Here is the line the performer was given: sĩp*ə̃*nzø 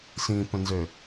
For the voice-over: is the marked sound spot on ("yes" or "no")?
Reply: yes